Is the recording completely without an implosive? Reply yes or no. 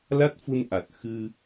yes